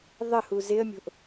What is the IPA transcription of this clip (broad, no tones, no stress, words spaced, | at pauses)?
ðˤəhu zɪə̯mʲo̤ʔ